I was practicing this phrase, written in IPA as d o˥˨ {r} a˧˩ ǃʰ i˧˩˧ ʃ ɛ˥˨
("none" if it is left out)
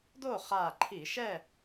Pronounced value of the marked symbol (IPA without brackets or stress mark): χ